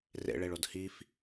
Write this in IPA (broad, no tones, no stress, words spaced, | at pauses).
rḛɭeɭod hif